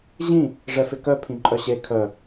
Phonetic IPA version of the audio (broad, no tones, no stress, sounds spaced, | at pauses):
ʑ ĩ | ʐ ɛ f ɪ k œ pʰ ĩ ǃʼ œ ɕ e kʰ œ